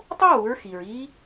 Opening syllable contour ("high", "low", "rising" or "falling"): high